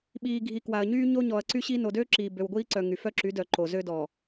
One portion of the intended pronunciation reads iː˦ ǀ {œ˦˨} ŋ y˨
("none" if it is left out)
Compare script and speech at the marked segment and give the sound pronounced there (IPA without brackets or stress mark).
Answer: œ˨